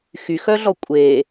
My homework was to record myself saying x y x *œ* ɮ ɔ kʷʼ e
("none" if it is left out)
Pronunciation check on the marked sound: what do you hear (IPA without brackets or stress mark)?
œ